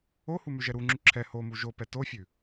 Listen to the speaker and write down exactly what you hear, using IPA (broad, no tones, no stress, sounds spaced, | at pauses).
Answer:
o h u m ʉ ʒ ɛ ɾ u ŋ͡ǁ ʉ ǁʰ ɛ h o m u ʒ o p ɛ t o fʲ ʉ